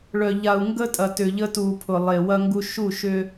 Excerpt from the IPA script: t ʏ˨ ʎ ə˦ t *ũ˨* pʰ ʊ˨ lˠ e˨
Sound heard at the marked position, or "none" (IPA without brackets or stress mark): u˨